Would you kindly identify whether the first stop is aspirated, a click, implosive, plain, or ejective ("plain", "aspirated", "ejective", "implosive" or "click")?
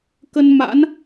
plain